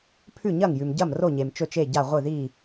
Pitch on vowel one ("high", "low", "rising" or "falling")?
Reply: falling